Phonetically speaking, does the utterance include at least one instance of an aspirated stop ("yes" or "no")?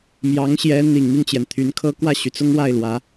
yes